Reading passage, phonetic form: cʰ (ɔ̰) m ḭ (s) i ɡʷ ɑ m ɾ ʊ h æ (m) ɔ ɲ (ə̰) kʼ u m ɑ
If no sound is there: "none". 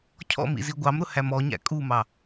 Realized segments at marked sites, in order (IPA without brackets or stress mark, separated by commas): ɔ̰, z, m, æ̰